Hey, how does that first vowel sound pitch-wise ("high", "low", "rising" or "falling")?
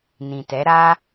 low